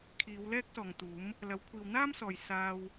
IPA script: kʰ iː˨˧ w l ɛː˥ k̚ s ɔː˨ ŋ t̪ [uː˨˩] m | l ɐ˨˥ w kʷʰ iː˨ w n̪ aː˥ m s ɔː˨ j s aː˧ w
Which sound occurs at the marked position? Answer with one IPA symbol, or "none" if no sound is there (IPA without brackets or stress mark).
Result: uː˨˥